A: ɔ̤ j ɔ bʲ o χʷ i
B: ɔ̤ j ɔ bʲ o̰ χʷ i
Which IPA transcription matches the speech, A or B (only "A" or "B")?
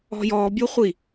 A